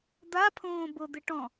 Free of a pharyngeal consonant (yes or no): yes